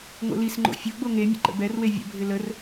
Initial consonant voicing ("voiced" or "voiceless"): voiced